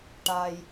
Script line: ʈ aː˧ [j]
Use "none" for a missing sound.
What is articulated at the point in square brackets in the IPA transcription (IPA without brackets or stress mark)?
j